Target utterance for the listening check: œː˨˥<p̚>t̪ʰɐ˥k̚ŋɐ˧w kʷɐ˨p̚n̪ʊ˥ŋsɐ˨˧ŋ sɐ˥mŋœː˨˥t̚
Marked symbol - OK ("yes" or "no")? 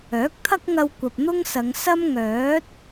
no